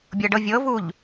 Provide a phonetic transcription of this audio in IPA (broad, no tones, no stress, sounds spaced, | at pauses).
bʲ ɤ ɖ ɤ vʲ ɤ v u ʎ